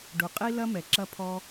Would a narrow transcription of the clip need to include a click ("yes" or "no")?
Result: yes